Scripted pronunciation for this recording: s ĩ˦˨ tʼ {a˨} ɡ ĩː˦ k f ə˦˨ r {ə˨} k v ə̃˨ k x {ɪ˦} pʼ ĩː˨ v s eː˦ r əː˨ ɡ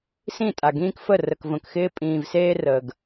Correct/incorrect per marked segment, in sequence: correct, correct, incorrect

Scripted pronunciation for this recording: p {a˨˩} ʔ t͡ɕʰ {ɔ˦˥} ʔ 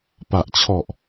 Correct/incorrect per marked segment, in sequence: correct, incorrect

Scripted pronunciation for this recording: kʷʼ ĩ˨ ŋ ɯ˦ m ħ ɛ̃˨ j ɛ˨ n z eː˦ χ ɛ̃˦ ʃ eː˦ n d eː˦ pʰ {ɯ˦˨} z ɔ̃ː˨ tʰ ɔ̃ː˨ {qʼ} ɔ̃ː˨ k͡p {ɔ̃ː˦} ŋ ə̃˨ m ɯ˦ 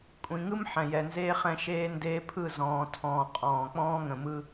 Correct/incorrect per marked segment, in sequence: correct, correct, correct

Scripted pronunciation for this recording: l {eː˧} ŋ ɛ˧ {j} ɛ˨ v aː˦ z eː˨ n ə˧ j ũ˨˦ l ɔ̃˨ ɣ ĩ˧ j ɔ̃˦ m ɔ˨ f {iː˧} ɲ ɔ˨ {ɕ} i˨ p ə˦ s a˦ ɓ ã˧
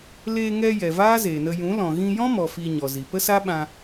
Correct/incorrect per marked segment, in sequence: correct, correct, incorrect, incorrect

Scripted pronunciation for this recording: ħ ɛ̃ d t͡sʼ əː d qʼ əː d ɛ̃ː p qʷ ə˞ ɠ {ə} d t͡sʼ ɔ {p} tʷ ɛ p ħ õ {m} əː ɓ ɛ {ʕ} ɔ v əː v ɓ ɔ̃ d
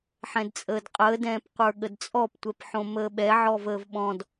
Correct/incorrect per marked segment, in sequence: correct, correct, correct, correct

